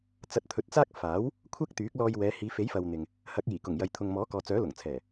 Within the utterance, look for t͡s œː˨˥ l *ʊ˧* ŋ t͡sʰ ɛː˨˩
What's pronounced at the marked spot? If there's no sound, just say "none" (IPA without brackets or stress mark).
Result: ʊ˨˩